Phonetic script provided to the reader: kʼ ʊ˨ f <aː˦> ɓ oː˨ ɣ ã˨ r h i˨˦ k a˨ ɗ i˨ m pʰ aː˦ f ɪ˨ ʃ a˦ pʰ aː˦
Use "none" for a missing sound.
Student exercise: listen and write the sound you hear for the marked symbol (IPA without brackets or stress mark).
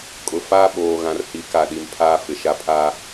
aː˦